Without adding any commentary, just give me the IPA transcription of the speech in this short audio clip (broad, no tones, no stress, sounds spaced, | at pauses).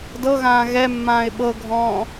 d ɤ ɣ ãː ɣ ɛ mː ãː ɪ̯ ɓ ɤ ɡʱ ɔ̃ː